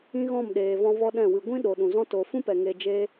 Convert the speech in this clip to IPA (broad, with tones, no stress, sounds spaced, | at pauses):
ĩ˦ ɣ ɔ̃˦˨ m ɗ eː˨ v ɔ̃˧ v ɔ˧ ɗ ɛ̃˦˨ w ɨ˧ ɡʷ ĩ˦ ɗ o˨ ɗ ũ˨ z ɔ̃˦ t o˧ f ũ˦ p ɛ˨ ŋ e˧ d͡ʒ e˦